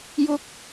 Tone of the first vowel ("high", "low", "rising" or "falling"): high